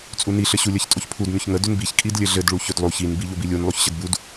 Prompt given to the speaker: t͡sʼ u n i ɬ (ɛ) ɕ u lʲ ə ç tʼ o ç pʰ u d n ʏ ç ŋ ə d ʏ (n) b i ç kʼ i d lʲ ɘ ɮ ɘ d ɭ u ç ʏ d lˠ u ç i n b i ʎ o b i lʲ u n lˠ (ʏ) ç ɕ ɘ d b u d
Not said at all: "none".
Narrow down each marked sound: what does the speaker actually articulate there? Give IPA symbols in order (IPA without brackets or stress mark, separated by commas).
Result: ɘ, n, u